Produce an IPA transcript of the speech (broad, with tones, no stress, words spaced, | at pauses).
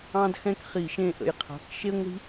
ɑ̃˥dxɛ̃˥kχi˧˩˧ʃẽ˦˨ ʔə̰˦˨jqʰa̤˧˥˧k ʃe˥ŋʷi̤˥